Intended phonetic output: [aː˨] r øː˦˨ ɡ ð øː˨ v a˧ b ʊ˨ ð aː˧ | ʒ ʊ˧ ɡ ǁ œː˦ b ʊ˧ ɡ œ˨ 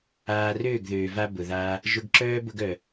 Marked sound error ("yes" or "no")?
no